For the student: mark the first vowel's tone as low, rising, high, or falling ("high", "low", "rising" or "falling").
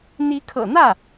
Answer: rising